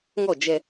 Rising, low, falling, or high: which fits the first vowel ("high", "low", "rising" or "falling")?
falling